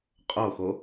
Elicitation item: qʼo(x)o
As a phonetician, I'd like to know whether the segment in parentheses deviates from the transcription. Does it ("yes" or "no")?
no